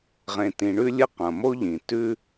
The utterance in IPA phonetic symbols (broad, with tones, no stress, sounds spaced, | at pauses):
ʁ ẽ˨ t ĩ˨ ɳ ʉ˦ lʲ ɨ˦ q ɐ̃˩ m o˥ ʎ ĩ˩ t ʉ˥